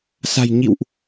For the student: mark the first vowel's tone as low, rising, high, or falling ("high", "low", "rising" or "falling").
low